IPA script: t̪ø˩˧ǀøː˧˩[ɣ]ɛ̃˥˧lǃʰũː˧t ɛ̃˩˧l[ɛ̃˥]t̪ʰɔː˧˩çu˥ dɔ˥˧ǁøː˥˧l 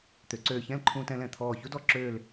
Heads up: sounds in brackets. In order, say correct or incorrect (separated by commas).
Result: incorrect, incorrect